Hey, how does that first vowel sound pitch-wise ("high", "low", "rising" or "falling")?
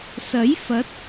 rising